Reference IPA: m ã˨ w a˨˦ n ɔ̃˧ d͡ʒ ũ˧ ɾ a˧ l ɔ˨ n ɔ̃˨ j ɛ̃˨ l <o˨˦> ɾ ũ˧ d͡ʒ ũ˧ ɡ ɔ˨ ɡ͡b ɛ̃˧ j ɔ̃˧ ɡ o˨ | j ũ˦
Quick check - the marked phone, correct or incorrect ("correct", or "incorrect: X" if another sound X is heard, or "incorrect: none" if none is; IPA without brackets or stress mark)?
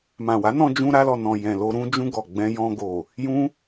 incorrect: o˧